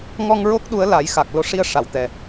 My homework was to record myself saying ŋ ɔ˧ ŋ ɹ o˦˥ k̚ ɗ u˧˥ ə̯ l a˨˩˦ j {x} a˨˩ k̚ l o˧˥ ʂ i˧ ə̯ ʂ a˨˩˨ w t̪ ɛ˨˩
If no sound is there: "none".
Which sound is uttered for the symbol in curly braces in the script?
x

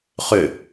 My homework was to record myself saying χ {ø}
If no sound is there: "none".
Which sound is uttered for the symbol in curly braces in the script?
ø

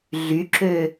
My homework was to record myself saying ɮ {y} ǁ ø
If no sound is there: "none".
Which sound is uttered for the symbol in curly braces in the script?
y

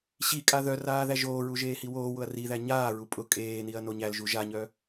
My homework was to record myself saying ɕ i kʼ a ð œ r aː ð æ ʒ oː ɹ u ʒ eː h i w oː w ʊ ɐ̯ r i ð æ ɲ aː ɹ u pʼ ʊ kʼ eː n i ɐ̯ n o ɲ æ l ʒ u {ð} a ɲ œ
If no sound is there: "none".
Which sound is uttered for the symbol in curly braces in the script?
ʒ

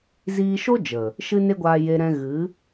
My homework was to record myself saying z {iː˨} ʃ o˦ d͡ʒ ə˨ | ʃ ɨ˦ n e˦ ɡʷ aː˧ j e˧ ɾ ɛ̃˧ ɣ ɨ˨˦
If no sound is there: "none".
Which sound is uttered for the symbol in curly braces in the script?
iː˧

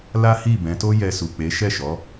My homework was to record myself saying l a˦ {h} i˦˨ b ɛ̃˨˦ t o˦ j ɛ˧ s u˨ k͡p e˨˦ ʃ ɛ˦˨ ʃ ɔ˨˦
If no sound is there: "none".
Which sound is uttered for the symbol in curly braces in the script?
h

